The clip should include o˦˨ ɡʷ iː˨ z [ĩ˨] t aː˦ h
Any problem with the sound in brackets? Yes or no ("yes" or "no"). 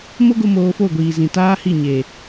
no